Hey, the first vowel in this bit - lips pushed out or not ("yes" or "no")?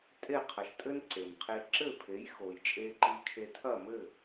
no